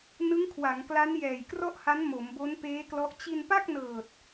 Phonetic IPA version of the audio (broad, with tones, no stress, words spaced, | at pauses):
nɯ˦˥ŋkʰwa˩˦ŋkla˦˥n jɛː˨˩jkrɔ˥˩ʔha˦˥n mo˩˦mbo˦˥npeː˦˥klɔ˦˥ʔ t͡ɕi˧npa˥˩k̚nɤː˨˩t̚